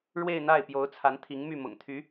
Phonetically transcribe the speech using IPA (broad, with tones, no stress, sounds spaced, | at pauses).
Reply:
ɻ w e˥˧ ɪ̯ n̪ a˥˩ ɪ̯ p j o˧˥ ʊ̯ t͡sʰ a˧˥ n t̪ʰ i˧˥ ŋ m y˥˩ m ʊ̰˨˩ ŋ t̪ʰ y˧˥